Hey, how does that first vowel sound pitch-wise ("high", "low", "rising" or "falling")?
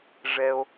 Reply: high